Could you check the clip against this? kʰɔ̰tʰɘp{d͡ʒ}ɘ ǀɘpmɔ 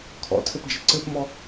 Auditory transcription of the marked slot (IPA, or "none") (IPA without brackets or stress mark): d͡ʒ